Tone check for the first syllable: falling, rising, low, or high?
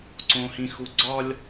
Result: high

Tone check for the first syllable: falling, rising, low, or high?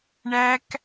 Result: high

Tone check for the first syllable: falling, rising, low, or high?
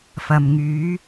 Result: low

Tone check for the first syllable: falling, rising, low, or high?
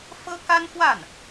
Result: high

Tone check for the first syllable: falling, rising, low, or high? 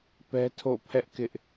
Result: high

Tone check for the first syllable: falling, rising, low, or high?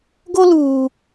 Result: high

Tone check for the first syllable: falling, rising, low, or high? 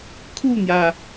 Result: falling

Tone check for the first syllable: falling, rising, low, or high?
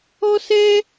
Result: high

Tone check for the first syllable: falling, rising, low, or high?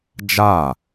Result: falling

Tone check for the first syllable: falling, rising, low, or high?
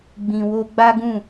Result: low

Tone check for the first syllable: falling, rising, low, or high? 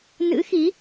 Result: rising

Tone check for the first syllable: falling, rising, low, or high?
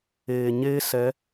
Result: low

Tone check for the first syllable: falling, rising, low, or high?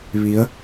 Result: rising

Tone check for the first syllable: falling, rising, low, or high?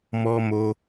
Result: high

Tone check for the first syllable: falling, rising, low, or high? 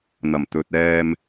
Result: low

